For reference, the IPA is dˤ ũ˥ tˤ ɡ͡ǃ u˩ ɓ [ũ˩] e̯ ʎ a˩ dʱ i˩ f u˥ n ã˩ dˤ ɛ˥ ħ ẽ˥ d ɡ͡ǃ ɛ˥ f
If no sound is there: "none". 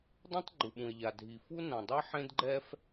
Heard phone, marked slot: ũ˩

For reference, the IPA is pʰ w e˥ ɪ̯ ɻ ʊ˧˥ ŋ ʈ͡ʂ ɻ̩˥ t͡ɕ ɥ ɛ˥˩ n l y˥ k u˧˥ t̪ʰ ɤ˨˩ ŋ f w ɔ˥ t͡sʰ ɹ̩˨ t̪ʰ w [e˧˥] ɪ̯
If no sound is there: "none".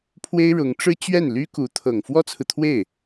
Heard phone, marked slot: e˥˩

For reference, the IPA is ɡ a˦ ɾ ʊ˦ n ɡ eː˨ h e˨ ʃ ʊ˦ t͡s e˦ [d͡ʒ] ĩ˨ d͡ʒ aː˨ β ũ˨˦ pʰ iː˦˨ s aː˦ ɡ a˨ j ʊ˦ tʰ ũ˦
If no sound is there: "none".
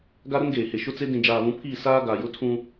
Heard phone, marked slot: d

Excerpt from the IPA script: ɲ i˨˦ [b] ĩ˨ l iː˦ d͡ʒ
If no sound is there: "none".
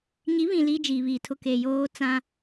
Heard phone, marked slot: β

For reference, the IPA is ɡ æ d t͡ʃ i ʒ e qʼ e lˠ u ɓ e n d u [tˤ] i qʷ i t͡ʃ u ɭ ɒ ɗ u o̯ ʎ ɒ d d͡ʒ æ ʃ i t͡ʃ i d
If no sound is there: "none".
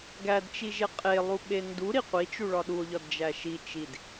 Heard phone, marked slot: ɾ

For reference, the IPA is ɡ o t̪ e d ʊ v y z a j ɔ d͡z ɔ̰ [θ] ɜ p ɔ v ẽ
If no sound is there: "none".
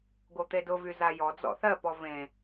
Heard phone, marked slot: θ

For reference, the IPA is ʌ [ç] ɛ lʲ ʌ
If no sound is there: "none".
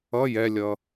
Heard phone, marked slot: j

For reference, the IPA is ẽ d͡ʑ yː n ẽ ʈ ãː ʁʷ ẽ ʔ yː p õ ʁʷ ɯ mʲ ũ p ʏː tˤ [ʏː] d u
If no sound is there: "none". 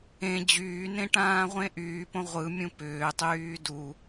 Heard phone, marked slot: yː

